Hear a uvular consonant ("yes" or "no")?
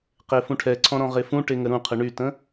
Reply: yes